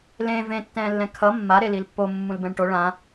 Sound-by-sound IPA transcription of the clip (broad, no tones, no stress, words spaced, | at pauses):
lẽː vẽtːɛ̃ːlːɛ̃ kʰʌ mːaɾe lilpːo mːũlbɛ̃ɳʈo ɭã